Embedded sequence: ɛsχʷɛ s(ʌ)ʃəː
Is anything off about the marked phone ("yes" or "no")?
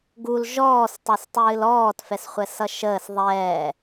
no